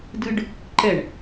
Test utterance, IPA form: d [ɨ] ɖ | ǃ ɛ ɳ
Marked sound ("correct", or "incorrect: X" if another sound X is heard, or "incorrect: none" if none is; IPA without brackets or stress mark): correct